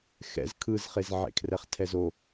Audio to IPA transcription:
xɛ̰z kʰɯzχez ʕḛkʰrɛχtʰɛzo

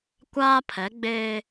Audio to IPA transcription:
kʷaː˦pʰɛ˨˦ɡ͡beː˦

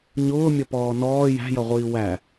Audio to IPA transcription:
ɲʊːmʲʌpɔː nɔː jæ̤jʌʁʷiː wæ

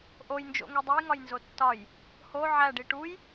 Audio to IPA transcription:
ʔojnd͡ʒo̰ŋe dˤujŋɒjnzo tːɒj | ho ʕæɖi ʈuj

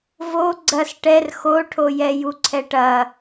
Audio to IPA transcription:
vo ɡ͡ǀɐs ʈɛr xoʈʰojɛ juǀʰɛʈɐ

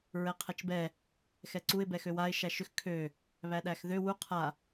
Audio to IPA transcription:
ɹɛqʰɛt͡ʃbɛ | xɛǀuɪ̯ bɛxøwaɪ̯ ʃæʃʏx kʰø | βæɗæxðø wu qʰa

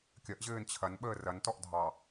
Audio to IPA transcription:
kʲɐʔ ʑɘːnt͡ɕʰɐn ɓəːrɐntɔʔ dʱɑ

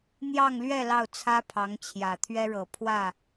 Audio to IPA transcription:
n̪jɑ˥˧ŋlɥɛ˥˧ lɑ˥˩ʊ̯t͡sʰä˥pʰɑ˧˥ŋ t͡ɕʰjä˨˩t̪ʰɥɛ˥ɻɤ˨˩ pʰwä˥˩

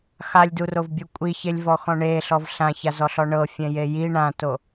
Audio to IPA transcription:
xalʲdurovbʲu kʷʼiçelʲvɔxɔ̃ ɳeɬɔv ɬãçazɔɬɔ ɳɤfʲɛ̃je ji ɳãto

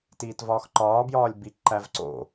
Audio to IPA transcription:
tiːtvɒːxǃɒː bjɒːlʲbi ǃævǀo̰

